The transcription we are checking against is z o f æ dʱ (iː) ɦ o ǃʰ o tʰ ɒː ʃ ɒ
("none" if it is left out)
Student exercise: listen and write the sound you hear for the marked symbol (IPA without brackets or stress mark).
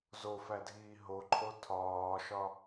iː